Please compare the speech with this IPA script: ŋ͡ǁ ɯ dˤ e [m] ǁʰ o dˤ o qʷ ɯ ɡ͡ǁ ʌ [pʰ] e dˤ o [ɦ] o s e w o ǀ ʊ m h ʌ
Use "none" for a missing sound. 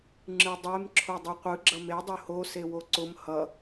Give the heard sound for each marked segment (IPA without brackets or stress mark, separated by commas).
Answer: m, m, h